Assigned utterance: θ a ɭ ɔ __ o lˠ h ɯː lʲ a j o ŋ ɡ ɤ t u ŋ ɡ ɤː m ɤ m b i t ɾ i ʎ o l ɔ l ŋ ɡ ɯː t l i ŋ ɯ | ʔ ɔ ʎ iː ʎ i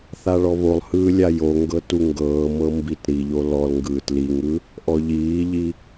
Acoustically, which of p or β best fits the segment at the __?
β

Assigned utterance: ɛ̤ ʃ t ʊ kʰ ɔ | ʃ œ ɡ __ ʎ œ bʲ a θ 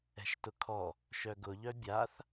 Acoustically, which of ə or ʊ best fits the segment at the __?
ʊ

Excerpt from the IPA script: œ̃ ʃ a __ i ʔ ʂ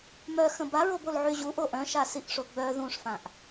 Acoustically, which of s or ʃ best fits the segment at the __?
s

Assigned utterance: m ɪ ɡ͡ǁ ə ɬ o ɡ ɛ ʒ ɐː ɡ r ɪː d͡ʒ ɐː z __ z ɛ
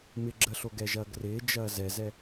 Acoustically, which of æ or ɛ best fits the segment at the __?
ɛ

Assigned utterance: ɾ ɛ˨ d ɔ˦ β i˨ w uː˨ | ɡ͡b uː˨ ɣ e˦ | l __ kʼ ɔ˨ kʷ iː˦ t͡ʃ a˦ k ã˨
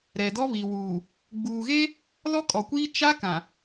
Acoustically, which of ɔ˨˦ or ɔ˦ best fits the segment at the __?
ɔ˦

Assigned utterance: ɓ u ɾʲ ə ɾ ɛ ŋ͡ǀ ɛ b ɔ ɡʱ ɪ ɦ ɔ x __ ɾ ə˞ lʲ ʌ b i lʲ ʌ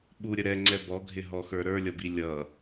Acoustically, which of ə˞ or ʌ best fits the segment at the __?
ə˞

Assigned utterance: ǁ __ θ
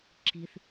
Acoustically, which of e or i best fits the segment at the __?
i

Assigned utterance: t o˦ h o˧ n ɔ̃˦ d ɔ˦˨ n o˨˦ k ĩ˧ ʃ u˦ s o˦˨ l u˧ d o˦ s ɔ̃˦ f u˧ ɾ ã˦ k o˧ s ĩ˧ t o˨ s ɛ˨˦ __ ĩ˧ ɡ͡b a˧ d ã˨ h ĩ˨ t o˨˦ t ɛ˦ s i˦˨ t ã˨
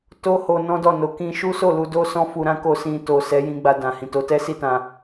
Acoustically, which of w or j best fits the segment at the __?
j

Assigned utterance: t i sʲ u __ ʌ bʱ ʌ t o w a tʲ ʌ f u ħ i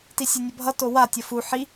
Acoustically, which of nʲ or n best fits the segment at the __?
nʲ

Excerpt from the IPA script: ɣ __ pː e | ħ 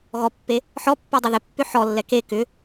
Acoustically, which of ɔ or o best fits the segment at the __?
ɔ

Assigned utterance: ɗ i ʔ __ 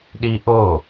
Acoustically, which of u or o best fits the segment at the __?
o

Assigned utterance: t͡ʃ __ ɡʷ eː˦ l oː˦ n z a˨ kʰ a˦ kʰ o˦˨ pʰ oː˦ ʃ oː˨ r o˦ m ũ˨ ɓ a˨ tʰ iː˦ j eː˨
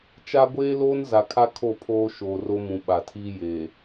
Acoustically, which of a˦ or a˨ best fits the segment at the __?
a˦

